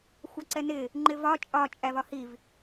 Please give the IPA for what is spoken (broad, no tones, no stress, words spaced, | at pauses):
xʷɑǀɛnɪ | ŋ͡ǃɪvɒ t͡ʃʼɒ t͡ʃʼævɒhiv